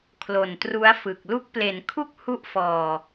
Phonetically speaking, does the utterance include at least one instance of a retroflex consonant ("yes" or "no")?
no